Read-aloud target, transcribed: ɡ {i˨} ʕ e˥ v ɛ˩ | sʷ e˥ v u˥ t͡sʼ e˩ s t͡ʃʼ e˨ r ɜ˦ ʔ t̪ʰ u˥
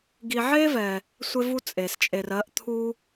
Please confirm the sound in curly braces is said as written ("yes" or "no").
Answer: yes